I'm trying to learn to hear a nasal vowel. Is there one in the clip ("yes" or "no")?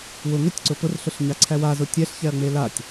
no